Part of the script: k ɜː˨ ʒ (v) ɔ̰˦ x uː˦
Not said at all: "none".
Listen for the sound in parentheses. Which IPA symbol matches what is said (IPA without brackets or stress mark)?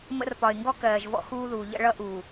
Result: v